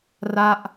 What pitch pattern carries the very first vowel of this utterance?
falling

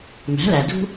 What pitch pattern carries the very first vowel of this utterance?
rising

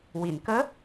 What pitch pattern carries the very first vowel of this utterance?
low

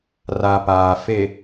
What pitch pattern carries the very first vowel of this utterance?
low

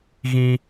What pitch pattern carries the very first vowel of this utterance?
high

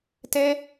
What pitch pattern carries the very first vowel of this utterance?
high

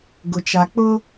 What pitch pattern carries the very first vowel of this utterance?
low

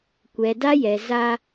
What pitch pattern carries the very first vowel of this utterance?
low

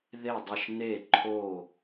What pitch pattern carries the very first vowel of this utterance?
falling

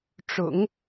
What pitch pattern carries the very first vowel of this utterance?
low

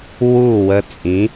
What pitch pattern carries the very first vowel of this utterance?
falling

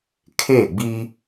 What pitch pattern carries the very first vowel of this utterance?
falling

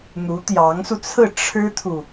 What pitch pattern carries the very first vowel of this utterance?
rising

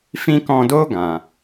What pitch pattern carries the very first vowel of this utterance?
high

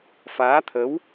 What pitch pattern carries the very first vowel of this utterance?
rising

